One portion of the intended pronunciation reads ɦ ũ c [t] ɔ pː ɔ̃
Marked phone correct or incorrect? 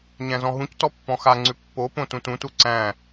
correct